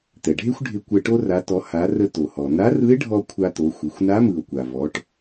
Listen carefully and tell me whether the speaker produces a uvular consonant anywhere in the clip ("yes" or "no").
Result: no